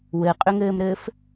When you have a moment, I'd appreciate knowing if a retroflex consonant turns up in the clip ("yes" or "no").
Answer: no